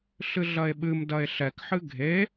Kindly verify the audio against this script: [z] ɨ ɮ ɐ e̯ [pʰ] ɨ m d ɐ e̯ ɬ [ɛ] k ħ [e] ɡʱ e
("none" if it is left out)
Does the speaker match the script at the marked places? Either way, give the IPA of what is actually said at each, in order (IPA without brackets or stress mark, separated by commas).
ɬ, ɓ, ɛ, ɨ